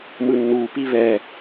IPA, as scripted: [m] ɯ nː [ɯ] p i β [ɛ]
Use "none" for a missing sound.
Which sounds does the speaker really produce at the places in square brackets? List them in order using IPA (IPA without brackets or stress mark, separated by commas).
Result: m, u, ɛ